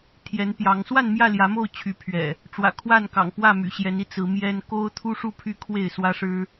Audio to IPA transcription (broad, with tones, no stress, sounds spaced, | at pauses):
t̪ʰ j ɛ˨˦ n p j ɑ˨˦ ŋ s w a˥˨ n m j ä˥˨ l j ä˨˦ m o˥˨ ʊ̯ t͡ɕʰ y˨˦ pʰ ɥ ɛ̰˨˩ | ʈ͡ʂ w ä̰˨˩ kʰ w a˥˨ n k ɑ̰˨˩ ŋ p w ä˥˨ m y̰˨˩ ɕ j ɛ˨˦ n i˨˦ t͡s ɹ̩˨˦ m j ɛ˦ n k o˦ ʊ̯ t̪ʰ u˦ ʂ u˥˨ pʰ y˦ kʰ w e˥˨ ɪ̯ s w ä˦ ʂ ɻ̩˦